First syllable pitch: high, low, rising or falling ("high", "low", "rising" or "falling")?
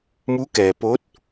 rising